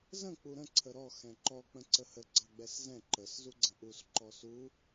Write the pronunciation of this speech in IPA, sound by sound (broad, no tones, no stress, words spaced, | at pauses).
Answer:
zə̃ k͡puɾə̃ ǀʰəɾɔ xɛ̃ǃɔ k͡pə̃ǀəhə ɡ͡ǀɑɡ͡bɛszɛ̃ ǃəs zuɡ͡ǀə̃ʔus ǃɔsu